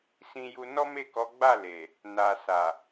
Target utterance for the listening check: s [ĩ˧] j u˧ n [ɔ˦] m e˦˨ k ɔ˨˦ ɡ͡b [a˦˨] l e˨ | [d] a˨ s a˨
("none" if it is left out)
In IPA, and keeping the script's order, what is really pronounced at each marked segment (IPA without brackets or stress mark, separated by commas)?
ĩ˧, ɔ˦, a˦˨, n